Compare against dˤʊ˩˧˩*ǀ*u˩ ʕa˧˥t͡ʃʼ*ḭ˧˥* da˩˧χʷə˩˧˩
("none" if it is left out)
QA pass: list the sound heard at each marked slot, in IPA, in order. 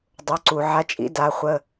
ǀ, ḭ˧˥

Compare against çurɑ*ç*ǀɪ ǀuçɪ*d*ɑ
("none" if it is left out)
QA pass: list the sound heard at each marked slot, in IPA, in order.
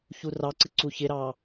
none, ɾ

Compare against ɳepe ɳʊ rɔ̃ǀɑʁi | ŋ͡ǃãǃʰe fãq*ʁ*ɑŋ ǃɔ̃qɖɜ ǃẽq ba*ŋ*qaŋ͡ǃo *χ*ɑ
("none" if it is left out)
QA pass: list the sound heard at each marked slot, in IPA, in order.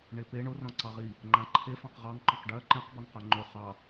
ʁ, ŋ, χ

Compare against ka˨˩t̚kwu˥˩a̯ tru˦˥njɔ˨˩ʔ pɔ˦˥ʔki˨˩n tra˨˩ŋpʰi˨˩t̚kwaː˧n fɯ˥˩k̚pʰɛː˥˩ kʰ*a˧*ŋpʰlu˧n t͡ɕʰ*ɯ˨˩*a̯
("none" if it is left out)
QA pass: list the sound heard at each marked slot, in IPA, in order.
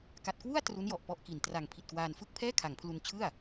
a˩˦, ɯ˥˩

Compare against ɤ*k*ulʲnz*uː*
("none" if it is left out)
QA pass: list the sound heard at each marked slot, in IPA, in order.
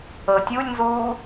tʲ, uː

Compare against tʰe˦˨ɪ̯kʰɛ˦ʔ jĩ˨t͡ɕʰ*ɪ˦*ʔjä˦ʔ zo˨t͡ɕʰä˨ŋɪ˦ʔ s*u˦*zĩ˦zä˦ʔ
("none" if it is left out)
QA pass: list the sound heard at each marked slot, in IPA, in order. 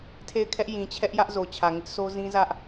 ɛ˦, o˦

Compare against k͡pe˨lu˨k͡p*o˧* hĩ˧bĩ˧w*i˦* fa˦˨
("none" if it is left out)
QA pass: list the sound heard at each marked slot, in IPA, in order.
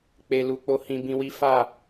o˧, i˦

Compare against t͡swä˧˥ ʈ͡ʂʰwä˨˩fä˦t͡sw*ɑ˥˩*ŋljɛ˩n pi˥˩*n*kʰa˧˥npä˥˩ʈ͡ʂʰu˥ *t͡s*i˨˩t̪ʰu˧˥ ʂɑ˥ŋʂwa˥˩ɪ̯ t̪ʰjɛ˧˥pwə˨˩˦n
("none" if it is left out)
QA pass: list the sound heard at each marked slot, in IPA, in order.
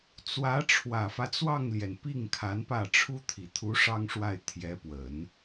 ɑ˥˩, ŋ, t̪ʰ

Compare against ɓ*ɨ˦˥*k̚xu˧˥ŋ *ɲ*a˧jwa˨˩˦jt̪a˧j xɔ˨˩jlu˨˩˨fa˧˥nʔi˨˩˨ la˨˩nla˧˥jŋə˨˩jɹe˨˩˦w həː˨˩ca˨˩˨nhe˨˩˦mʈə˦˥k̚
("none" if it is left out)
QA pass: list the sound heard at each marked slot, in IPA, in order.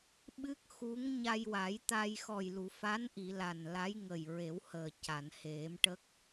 ɨ˦˥, ɲ

